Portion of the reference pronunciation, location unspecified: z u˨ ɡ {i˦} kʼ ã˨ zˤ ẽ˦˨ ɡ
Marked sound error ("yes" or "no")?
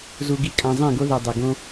no